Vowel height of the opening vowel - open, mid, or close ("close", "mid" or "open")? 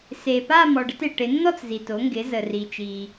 mid